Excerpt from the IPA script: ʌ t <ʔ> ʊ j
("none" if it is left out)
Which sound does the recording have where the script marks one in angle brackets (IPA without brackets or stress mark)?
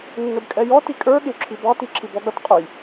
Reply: qʼ